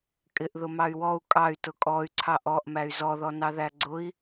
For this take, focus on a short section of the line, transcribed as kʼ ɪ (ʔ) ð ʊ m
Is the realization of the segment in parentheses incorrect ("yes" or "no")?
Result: no